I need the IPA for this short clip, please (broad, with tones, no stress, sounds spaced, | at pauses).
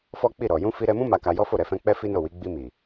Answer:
f ɔ˦ k͡p i˦˨ ɾ ɔ˨ j ũ˧ f i˧ ɾ ɛ˧ m ũ˦ m a˧ k a˧ j ɔ˦ f o˦˨ ɾ ɛ˧ f ɛ̃˧ k͡p ɛ˦ f i˦ n o˦˨ w i˨˦ ɡ͡b i˧ m i˨